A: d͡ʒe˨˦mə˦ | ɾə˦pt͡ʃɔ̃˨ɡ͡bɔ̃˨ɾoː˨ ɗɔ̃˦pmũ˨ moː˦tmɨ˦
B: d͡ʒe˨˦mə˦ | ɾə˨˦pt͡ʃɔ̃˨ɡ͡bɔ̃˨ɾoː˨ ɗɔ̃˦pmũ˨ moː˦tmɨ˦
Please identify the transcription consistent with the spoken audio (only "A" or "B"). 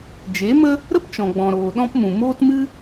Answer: A